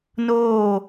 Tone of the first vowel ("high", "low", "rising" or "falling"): falling